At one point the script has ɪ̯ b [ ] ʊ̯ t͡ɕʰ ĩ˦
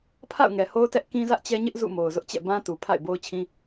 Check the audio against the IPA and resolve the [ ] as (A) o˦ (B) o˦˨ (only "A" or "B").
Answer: A